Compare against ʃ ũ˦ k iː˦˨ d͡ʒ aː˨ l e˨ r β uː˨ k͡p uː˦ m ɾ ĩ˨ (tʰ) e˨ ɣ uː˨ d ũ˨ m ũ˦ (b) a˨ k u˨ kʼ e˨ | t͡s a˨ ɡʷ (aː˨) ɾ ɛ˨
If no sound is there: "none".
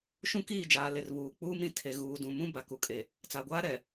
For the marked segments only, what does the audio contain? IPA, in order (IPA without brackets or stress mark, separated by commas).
tʰ, b, aː˦